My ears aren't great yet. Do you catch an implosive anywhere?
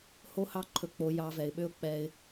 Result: yes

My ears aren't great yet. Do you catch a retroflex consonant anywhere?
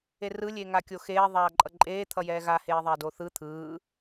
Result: no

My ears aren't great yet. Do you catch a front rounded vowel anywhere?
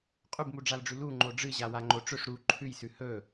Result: no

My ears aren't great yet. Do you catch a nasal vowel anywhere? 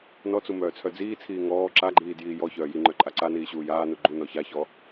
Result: no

